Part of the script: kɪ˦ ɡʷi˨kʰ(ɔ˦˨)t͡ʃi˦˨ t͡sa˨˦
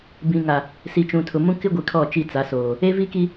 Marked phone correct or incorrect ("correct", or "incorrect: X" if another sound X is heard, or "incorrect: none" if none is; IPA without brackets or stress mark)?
correct